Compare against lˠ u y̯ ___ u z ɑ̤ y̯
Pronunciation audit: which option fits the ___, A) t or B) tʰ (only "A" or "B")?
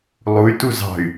A